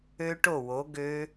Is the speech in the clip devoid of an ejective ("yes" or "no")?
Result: yes